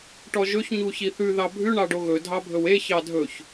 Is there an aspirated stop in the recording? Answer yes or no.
no